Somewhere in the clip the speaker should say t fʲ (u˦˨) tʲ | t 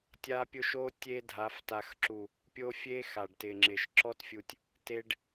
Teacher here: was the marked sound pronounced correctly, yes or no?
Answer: no